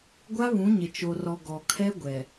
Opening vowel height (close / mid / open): open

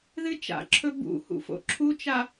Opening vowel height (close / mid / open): close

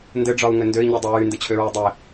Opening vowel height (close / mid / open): mid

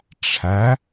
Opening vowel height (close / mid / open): open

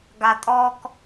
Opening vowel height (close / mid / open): open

